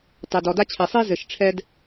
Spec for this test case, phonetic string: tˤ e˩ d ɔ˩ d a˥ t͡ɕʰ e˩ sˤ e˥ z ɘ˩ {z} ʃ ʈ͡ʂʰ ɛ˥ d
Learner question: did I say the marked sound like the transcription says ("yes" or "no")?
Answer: no